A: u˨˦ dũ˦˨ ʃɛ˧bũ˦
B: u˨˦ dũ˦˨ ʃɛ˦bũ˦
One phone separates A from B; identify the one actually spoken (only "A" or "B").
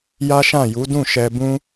A